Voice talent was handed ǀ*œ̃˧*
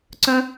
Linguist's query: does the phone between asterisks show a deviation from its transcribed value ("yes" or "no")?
no